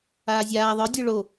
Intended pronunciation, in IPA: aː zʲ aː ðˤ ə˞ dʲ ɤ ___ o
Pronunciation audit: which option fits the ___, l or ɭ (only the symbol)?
ɭ